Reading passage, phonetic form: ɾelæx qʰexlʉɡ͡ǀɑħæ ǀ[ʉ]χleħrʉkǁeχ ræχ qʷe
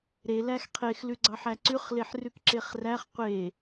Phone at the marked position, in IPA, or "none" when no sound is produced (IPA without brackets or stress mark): ʉ